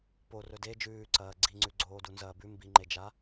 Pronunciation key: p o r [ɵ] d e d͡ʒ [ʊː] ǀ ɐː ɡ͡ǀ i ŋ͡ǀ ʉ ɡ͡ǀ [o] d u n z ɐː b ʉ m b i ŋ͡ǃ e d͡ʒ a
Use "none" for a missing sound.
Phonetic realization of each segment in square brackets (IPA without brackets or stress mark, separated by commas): ɵ, ʉː, oː